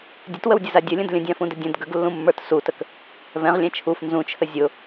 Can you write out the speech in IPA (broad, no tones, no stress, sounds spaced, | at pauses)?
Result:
dʲ ə t w ə w dʲ ə z a dʲ ə lʲ ə̃ d lʲ ə̃ dʲ ã f ũ d ə dʲ ə̃ d ɡ ə ɡ lː ũ mː ə˞ t s u t ə k | v ɛ̃ ʁ lʲ ɛ̃ t͡ʃʰ u f n z ũ t͡ʃʰ ə zʲ ʊ